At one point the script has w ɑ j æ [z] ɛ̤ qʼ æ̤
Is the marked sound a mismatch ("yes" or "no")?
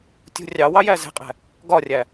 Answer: no